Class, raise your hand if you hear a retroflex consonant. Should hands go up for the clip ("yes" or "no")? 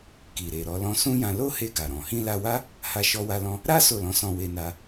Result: no